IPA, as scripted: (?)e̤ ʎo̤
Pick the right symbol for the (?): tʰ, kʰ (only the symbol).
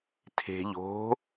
tʰ